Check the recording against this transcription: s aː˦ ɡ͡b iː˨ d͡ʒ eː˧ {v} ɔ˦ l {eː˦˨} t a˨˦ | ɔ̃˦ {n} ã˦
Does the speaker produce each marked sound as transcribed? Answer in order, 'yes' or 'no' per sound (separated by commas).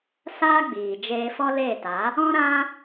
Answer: no, yes, no